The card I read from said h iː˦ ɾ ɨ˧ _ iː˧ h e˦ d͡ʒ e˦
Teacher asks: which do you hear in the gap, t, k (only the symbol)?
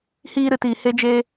t